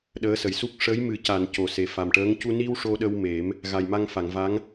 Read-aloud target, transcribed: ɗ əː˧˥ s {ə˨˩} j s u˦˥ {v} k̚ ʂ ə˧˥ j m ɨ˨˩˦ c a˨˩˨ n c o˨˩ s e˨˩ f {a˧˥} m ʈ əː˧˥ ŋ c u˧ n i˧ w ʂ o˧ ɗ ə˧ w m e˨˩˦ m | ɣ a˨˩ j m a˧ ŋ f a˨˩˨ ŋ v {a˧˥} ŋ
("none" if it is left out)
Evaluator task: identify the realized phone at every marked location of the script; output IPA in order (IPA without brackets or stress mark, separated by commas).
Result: ə˨˩, none, a˨˩, a˧˥